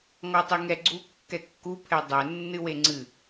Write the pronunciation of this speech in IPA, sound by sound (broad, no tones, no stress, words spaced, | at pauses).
ŋɔtˤɨŋɛɡ͡ǀu kːɛkːu pʰɛdˤɛ nːɨweŋ͡ǀɨ